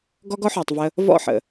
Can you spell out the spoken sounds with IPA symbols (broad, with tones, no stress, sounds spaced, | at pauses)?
ɡ ɔ˦ ɡ ɔ˦ ħ ɔ˨ tˤ v ə˧ | v ɔ̰˦˨ ħ ə̰˨